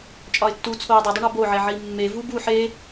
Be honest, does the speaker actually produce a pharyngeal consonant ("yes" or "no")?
yes